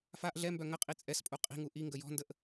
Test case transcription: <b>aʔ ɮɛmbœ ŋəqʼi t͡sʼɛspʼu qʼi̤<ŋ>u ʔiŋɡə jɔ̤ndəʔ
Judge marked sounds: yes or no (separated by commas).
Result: no, yes